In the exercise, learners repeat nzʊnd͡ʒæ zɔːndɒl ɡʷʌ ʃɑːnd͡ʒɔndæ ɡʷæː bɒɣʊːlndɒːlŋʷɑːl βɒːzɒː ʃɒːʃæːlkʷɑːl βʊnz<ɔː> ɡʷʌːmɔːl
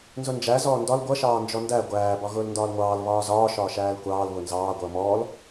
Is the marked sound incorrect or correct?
incorrect